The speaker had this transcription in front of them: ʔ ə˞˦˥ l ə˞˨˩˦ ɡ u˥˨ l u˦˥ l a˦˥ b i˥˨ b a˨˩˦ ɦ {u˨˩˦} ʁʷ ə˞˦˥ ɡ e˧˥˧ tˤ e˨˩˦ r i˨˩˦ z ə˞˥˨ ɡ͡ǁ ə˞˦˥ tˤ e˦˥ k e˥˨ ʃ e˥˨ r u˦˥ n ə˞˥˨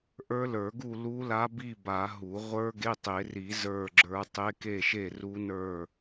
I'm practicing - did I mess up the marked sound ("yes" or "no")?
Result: no